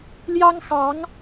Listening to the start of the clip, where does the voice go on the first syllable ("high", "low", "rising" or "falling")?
high